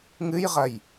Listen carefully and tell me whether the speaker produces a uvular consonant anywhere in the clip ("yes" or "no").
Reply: yes